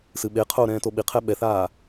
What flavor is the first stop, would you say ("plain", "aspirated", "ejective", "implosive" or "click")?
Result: implosive